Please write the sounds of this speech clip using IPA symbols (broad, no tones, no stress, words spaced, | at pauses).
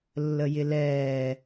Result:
lːəjɪlɛː